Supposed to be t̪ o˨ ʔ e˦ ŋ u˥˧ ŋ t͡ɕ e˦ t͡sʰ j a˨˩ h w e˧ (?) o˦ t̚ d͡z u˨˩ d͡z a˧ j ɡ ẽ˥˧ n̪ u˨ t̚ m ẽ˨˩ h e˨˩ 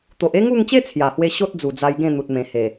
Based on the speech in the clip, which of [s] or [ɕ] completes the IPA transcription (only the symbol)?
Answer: ɕ